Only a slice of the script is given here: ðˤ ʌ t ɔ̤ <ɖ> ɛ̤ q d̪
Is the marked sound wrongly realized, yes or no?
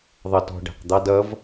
no